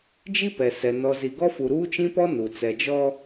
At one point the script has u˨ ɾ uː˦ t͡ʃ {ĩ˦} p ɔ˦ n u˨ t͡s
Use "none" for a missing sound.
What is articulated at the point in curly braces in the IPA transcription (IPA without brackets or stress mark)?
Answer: ĩ˦